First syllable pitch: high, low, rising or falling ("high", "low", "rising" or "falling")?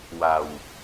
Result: low